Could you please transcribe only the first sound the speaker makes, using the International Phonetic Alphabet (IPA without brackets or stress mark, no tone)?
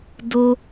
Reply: d